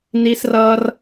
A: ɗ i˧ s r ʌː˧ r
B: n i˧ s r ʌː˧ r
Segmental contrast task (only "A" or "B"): B